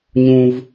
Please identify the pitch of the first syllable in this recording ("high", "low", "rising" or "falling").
high